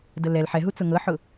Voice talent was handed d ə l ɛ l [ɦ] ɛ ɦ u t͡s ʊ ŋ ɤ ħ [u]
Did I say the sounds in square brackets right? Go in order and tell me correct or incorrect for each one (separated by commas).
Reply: incorrect, incorrect